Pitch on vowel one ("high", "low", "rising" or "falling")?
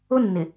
high